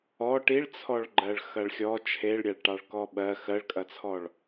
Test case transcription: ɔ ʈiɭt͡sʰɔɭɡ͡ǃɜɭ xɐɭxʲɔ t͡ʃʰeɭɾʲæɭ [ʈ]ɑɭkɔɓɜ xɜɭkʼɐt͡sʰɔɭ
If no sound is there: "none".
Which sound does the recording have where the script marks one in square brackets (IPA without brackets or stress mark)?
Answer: ʈ